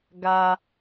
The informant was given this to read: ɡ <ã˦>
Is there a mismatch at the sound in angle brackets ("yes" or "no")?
yes